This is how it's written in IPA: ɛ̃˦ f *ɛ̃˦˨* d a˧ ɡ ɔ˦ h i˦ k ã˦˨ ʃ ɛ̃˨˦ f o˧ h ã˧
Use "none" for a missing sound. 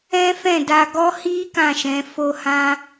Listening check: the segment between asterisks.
ɛ̃˦˨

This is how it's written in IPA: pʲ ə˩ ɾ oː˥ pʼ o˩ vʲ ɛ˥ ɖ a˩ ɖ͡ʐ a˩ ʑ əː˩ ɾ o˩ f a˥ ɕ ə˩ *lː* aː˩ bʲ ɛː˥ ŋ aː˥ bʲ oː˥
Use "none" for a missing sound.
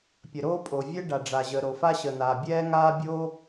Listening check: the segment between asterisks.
n̪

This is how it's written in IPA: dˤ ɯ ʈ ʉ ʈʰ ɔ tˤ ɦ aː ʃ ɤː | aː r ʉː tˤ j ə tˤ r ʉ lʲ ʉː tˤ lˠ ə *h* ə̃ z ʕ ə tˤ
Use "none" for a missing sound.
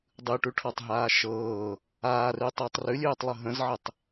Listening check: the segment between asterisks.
ɦ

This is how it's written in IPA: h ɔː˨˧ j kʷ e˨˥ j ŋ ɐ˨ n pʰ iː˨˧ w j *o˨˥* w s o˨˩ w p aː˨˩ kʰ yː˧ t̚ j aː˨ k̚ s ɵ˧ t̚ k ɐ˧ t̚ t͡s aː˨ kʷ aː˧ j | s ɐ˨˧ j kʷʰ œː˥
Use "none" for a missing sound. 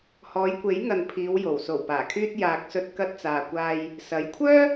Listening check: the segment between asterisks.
o˨˩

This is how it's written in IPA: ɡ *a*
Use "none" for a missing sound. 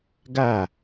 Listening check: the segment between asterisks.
a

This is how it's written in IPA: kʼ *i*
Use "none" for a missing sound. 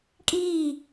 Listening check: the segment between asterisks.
iː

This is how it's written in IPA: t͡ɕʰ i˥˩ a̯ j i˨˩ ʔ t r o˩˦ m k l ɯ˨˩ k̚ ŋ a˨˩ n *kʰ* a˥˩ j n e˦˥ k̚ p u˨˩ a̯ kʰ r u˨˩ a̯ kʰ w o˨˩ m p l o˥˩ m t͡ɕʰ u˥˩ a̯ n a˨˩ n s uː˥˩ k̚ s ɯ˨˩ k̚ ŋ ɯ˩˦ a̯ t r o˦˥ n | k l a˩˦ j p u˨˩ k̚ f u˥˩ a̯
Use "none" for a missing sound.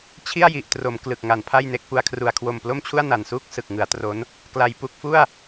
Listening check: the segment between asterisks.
pʰ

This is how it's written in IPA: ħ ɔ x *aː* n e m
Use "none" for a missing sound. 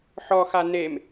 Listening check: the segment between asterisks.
a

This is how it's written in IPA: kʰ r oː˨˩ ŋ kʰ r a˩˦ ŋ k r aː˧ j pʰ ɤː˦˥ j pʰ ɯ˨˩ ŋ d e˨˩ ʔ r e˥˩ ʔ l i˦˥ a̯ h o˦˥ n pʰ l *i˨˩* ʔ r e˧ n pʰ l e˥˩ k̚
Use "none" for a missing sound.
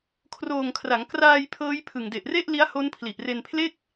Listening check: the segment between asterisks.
i˨˩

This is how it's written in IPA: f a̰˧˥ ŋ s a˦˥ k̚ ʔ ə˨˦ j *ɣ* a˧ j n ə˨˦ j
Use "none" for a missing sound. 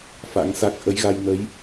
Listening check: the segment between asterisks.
ɣ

